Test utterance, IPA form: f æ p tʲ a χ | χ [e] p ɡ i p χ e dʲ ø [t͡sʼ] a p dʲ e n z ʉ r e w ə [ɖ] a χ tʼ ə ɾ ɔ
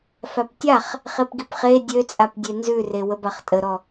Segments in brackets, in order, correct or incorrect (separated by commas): correct, correct, incorrect